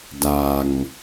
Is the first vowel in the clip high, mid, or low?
low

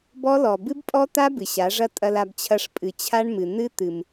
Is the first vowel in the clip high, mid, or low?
mid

